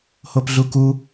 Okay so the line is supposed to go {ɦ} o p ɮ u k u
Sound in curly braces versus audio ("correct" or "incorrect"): incorrect